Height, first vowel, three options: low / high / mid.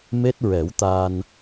mid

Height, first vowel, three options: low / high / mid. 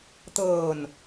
mid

